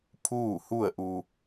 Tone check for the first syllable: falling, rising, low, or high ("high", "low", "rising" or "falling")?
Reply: falling